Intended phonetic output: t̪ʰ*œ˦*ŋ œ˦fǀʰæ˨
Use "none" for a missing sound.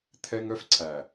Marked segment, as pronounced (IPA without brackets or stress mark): ɛ˦